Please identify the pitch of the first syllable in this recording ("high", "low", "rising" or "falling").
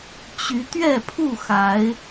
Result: rising